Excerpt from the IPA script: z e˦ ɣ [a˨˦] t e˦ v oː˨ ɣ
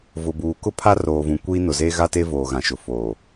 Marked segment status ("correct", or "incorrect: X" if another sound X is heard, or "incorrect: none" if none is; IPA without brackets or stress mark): incorrect: a˦